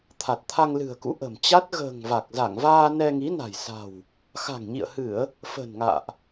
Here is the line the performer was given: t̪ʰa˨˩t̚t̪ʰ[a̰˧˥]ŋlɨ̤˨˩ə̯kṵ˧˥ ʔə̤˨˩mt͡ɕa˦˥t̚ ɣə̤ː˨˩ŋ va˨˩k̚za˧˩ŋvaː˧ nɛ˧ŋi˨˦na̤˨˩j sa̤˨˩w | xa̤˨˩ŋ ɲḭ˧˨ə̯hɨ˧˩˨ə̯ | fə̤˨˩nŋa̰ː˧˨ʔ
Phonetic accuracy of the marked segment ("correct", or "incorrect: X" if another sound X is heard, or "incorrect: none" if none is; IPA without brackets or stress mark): incorrect: a˧